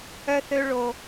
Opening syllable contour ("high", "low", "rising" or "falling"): high